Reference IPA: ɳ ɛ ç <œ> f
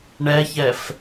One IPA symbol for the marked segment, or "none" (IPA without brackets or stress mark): ɛ